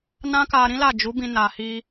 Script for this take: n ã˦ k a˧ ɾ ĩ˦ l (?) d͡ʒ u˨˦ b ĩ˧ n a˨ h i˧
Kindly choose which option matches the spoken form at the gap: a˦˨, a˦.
a˦˨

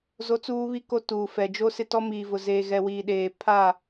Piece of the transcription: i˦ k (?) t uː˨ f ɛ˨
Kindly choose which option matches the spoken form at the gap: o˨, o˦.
o˦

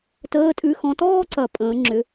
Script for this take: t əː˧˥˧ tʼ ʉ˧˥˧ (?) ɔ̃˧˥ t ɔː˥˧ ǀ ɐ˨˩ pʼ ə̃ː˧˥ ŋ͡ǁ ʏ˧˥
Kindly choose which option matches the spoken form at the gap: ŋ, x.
x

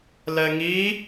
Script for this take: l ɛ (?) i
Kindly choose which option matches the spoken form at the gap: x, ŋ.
ŋ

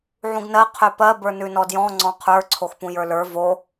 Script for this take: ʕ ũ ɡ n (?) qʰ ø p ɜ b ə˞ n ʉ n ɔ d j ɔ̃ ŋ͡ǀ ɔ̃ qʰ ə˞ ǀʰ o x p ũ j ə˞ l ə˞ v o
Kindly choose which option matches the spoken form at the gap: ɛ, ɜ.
ɜ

